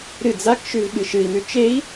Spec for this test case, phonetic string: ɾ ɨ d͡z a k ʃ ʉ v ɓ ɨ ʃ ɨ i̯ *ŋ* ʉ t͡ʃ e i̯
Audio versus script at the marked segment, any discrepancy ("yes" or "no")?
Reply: yes